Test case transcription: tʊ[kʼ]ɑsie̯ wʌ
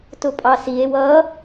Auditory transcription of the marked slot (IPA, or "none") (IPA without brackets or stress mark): pʼ